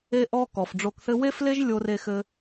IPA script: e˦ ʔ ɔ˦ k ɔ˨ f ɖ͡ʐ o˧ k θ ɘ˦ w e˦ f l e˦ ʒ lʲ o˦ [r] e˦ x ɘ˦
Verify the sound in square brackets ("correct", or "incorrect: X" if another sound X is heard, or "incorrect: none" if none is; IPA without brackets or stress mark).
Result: correct